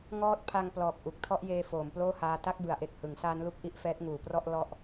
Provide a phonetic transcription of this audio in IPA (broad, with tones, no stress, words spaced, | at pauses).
ŋɔː˦˥t̚ pʰa˧ŋ plɔː˨˩k̚ ʔu˨˩k̚tʰɔ˥˩ʔjeː˧ foː˩˦mploː˥˩haː˧ ta˥˩k̚bɯ˩˦a̯ʔe˨˩k̚ hɯ˩˦ŋsaː˦˥nlu˦˥k̚ ʔi˥˩ʔfɛː˦˥t̚ ŋuː˩˦prɔ˥˩ʔ lɔ˥˩ʔ